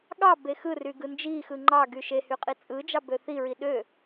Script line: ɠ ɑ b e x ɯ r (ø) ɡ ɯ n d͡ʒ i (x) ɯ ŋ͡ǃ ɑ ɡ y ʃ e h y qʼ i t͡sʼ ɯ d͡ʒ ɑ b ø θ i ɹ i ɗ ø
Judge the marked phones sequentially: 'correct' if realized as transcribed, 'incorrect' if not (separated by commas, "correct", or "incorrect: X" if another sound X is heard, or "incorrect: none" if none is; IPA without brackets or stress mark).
incorrect: y, correct